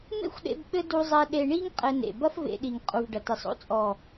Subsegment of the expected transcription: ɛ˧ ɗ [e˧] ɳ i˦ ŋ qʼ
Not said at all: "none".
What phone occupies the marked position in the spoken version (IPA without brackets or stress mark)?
e˧